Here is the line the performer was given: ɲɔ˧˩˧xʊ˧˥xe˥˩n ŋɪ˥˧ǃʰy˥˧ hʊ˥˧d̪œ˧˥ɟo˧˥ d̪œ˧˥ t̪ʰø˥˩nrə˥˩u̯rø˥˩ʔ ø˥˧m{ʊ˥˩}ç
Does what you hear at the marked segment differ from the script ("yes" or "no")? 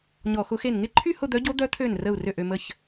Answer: yes